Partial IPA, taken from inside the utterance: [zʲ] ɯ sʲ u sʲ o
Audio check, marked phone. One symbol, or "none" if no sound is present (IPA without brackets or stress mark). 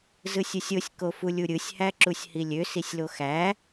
z